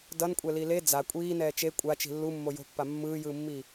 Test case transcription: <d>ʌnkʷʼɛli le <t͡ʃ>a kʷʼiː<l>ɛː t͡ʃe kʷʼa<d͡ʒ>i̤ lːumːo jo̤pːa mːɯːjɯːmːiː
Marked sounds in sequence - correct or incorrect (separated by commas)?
correct, incorrect, incorrect, incorrect